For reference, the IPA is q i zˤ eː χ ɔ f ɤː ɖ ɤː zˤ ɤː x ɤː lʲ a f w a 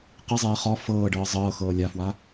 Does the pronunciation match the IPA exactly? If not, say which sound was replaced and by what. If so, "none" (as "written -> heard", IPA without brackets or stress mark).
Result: none